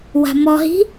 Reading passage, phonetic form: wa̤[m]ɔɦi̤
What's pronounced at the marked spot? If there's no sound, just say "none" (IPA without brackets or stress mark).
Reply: m